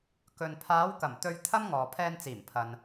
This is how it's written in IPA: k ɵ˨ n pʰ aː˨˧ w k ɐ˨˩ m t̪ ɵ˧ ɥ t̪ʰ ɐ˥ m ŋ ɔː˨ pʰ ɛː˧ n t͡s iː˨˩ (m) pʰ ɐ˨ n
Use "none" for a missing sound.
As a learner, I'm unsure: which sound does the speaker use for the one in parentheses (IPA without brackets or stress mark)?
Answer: m